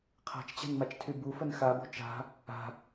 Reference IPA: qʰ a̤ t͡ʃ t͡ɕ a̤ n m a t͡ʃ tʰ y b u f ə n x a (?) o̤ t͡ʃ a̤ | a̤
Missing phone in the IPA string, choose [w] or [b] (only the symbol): b